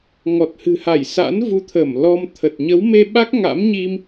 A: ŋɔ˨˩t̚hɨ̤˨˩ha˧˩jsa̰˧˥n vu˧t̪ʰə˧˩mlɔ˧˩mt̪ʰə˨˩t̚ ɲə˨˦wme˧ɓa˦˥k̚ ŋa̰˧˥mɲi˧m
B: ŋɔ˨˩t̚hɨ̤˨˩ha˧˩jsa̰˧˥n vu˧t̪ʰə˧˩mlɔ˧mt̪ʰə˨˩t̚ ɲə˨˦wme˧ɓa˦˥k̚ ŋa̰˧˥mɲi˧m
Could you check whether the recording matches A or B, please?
B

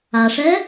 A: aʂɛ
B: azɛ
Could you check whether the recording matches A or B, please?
A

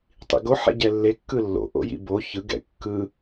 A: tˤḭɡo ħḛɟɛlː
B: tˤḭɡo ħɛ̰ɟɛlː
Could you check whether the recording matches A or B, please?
B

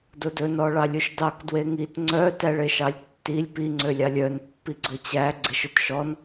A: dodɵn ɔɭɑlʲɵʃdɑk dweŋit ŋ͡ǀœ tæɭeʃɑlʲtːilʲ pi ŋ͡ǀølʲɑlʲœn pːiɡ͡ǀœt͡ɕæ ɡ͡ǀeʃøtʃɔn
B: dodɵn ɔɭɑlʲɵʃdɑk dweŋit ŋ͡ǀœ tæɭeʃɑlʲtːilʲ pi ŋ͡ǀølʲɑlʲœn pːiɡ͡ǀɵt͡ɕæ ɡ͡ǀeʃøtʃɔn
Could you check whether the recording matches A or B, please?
B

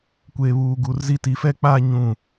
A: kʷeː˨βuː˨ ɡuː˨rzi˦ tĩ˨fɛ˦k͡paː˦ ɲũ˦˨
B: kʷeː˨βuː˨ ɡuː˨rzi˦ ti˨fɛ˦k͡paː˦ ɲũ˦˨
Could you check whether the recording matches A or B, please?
B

